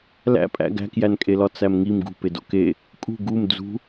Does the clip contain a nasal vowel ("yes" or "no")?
no